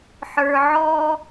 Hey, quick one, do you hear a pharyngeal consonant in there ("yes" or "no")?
yes